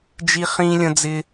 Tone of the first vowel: high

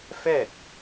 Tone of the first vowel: falling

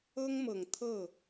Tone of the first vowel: high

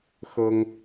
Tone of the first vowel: high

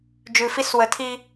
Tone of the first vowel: low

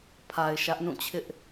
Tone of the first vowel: low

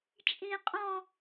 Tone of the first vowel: high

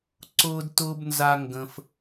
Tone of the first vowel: high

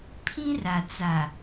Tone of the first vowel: high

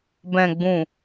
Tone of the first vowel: low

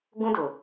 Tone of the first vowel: high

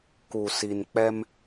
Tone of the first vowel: low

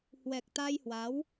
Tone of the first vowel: low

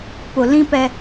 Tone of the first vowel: low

